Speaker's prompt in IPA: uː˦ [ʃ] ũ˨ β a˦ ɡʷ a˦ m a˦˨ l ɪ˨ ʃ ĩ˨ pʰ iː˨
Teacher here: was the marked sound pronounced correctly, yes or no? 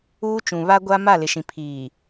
no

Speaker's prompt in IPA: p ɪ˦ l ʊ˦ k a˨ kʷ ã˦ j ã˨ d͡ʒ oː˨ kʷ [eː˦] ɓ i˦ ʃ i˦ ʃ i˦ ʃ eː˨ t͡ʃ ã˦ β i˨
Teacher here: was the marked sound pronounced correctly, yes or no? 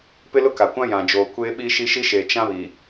yes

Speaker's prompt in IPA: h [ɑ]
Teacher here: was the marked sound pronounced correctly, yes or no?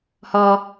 no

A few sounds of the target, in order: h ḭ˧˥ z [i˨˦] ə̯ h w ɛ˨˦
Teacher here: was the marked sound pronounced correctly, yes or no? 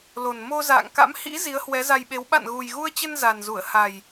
yes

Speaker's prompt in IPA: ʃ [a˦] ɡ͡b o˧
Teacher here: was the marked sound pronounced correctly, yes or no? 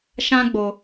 no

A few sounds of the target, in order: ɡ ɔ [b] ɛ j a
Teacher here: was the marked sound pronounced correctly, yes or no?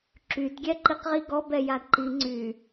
yes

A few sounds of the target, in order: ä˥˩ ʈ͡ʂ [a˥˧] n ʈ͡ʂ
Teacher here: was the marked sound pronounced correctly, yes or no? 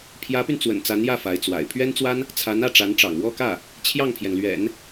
no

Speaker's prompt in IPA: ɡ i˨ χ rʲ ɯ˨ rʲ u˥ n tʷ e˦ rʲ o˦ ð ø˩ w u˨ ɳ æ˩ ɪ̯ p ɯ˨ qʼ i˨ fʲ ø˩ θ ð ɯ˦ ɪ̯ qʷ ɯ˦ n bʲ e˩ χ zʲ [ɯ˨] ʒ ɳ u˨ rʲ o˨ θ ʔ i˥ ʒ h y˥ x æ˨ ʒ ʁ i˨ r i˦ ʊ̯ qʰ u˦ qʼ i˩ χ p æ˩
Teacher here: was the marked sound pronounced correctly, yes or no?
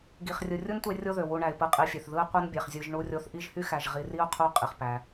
yes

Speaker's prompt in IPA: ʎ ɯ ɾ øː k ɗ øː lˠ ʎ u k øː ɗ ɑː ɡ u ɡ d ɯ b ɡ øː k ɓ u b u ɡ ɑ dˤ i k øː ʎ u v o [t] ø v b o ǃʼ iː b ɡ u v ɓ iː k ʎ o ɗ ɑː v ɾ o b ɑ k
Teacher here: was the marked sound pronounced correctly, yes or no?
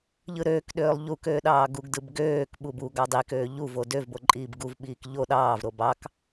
no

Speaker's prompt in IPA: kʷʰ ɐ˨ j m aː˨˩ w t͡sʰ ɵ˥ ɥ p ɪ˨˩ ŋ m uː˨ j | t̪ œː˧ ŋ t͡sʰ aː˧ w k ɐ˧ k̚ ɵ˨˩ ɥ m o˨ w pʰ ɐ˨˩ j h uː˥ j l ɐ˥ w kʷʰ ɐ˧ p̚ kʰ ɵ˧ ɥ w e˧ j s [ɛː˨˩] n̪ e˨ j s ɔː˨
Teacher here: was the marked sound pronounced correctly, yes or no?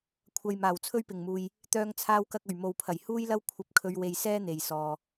no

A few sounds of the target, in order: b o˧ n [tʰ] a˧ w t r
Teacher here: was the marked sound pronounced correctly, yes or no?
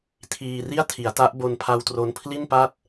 no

